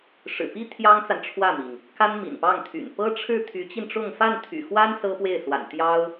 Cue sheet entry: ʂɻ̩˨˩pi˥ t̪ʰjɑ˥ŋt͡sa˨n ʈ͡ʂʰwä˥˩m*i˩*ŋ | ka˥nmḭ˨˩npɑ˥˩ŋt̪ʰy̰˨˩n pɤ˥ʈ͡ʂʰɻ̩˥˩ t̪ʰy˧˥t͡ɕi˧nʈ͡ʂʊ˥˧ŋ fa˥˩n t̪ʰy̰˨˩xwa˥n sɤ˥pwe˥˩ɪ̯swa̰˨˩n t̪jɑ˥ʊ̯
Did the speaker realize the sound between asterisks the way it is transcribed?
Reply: yes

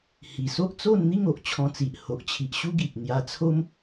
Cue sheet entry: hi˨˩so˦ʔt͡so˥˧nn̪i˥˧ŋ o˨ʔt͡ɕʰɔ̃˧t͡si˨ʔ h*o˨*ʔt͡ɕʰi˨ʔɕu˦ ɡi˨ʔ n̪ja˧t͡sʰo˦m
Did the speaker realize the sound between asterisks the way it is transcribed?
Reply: yes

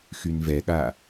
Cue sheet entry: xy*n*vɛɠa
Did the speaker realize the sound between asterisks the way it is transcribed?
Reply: yes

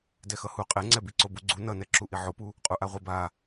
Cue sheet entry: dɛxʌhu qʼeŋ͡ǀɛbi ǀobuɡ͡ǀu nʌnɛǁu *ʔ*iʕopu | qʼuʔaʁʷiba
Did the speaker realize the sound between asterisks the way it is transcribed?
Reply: yes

